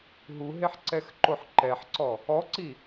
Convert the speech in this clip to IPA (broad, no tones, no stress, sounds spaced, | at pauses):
ɦ u ɦ e ħ ǀ ɛ x ǃ o ħ ǃ ɛ ħ ǀ ɔ | ɔ ǀ i